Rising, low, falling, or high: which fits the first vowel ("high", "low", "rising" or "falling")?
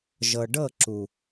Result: low